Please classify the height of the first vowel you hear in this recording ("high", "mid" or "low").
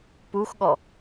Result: high